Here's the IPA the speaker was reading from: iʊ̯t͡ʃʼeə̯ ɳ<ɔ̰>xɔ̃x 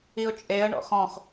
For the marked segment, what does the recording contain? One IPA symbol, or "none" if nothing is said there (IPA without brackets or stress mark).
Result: ɔ̰